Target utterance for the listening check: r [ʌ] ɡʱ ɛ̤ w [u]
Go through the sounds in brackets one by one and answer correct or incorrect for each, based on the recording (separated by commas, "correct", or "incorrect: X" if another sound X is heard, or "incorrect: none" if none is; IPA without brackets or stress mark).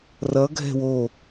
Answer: correct, incorrect: o